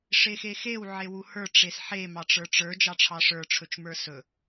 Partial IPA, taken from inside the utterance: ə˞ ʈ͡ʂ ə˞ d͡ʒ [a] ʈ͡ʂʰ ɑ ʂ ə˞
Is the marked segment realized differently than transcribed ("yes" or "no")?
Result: yes